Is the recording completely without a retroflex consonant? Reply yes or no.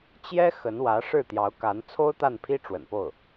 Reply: no